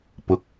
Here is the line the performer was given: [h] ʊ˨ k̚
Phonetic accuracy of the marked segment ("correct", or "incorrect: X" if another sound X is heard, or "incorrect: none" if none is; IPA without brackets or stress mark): incorrect: p